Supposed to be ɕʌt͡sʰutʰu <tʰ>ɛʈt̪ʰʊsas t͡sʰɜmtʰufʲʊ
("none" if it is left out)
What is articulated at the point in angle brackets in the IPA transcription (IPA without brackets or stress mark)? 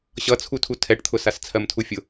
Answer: tʰ